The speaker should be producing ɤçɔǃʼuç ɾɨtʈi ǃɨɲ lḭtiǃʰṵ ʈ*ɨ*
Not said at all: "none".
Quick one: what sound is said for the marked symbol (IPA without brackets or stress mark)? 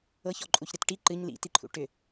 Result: ʏ